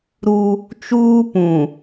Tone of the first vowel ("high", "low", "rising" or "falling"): high